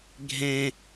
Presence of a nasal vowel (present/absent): present